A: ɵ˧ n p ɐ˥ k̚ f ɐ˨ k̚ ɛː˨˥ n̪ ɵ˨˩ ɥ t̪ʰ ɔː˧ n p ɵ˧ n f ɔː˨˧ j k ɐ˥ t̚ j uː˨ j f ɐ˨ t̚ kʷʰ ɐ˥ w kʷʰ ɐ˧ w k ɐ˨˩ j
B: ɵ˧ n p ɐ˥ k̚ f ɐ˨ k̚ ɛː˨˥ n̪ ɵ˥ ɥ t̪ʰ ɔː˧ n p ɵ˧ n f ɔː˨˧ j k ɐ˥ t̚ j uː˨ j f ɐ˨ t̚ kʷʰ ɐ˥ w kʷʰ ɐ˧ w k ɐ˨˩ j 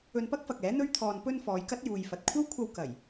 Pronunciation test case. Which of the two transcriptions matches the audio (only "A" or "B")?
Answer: B